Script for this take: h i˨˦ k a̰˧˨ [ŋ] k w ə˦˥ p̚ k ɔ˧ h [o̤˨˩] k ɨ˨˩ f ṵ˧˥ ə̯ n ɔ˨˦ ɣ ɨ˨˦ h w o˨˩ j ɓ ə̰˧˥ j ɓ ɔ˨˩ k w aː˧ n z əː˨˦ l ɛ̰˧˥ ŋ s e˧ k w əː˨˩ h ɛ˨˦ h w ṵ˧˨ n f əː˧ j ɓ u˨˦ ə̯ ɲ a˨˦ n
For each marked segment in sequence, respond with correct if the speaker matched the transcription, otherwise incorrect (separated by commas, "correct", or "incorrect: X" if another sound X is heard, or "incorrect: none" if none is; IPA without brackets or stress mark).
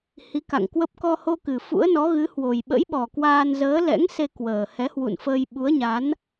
correct, incorrect: o˧